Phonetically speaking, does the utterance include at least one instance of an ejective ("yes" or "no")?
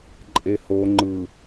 yes